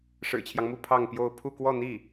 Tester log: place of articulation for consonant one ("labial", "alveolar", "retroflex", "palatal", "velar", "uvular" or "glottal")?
retroflex